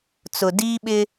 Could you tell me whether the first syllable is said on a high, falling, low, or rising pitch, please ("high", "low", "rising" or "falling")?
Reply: low